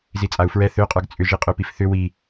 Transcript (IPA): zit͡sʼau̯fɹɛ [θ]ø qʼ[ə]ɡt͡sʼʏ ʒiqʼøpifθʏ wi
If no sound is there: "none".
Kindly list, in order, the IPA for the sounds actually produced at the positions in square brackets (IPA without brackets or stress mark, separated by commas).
θ, ə˞